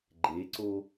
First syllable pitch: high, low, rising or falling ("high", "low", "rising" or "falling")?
rising